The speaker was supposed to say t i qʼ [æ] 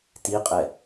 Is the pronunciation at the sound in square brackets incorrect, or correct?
incorrect